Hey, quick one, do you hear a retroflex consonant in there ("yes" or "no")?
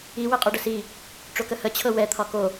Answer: yes